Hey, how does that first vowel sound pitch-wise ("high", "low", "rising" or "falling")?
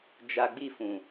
low